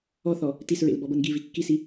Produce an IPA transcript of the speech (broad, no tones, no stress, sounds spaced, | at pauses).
ɔ θ ɔ | t i s ɹ ḛ l b ɔ b ɤ n ɡ i v i kː i s i